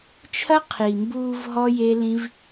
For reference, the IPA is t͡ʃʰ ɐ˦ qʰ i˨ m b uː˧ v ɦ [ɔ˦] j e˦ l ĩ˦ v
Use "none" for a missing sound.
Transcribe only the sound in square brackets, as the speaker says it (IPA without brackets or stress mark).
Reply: ɔ˦